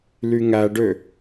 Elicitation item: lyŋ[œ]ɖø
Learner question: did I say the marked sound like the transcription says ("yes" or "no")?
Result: no